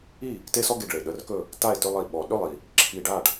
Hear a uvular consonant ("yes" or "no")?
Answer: no